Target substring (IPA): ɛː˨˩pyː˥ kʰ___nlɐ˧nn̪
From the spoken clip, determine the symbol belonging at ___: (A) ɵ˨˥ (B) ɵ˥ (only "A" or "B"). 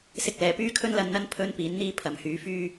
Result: B